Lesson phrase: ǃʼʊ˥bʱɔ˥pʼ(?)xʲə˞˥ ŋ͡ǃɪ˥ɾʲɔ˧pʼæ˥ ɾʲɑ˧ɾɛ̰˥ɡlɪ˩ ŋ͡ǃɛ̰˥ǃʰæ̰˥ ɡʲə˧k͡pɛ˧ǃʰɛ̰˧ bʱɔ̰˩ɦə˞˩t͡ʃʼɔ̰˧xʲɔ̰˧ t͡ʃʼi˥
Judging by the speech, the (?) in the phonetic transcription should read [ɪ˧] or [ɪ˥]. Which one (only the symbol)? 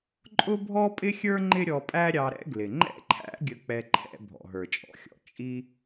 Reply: ɪ˥